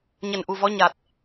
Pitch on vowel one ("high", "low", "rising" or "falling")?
low